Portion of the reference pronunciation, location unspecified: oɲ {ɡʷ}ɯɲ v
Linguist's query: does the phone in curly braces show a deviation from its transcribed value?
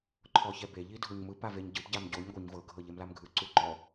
no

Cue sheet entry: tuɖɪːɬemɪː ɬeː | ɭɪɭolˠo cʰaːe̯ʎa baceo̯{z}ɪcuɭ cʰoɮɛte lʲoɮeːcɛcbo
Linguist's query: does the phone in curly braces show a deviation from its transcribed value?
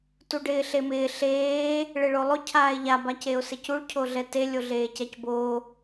yes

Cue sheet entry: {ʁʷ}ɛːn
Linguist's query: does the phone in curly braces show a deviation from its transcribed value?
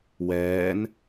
yes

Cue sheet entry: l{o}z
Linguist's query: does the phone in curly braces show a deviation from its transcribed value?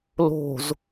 yes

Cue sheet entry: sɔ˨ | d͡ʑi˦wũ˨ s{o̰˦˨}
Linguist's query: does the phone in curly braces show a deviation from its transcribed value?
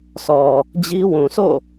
no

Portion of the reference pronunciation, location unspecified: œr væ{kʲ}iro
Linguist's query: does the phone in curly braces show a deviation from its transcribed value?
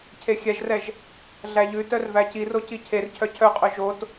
yes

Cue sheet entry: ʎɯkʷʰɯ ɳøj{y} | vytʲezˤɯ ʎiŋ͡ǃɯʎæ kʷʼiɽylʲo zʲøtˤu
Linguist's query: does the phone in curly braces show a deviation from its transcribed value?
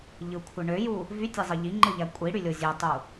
yes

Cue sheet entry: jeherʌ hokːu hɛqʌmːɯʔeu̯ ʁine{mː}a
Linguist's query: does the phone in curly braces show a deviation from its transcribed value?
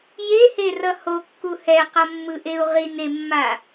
no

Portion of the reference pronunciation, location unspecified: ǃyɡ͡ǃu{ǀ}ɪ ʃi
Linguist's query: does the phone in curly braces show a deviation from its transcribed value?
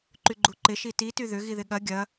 yes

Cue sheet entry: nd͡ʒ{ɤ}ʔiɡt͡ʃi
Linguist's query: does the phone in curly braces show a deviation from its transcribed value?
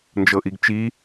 no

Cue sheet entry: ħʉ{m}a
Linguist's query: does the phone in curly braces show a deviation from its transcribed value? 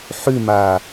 no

